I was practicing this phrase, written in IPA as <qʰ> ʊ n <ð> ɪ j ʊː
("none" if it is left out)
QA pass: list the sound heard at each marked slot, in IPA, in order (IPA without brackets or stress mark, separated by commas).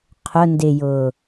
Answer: qʰ, d